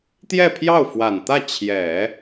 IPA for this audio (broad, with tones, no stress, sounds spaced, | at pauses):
t̪ j ɛ˥˧ pʰ j ɑ˥˩ ʊ̯ f w a˨˩ n t̪ ä˥˩ t͡ɕʰ j ɛ˨˩˦